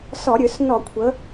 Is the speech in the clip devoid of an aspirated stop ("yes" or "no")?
no